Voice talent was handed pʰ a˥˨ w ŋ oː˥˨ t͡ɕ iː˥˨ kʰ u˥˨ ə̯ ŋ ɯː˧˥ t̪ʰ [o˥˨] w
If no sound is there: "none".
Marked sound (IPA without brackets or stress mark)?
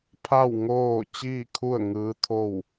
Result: o˥˨